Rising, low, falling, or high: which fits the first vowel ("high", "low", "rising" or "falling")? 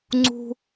high